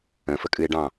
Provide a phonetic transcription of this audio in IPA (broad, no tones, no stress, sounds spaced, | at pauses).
ə̃ f ə kʼ ɨ e̯ ɖ ɑ̃